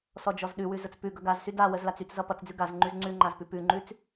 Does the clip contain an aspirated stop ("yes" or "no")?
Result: no